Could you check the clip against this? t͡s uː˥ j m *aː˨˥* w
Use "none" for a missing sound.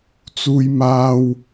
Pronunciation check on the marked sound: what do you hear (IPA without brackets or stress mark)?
aː˥